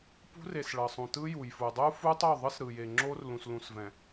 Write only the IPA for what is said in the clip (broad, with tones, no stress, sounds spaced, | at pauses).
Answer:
p ṳ˦ r e˨ s ɭ ʌ˨ sˤ ũ˨ t ɯ˦ j u˨ j f u˨ dˤ u˦ f u˦ tˤ o˦˨ ðˤ ɯ˦ s ɾ ɯ˨ j e˨ ŋ͡ǁ o˦ r l ũ˨ s l ũ˨ s v ɛ̃˨